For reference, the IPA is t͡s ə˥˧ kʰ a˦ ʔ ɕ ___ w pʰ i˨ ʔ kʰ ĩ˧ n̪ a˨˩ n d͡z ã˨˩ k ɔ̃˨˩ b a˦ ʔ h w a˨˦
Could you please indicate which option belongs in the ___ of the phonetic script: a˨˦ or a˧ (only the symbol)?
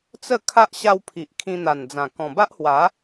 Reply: a˧